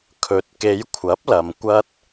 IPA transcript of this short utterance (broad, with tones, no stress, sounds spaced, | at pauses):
kʰ ɵ˨˥ t̚ k e˨˧ j kʷʰ ɐ˨˥ p̚ l ɐ˨ m kʷ ɐ˥ t̚